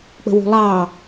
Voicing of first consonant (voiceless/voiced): voiceless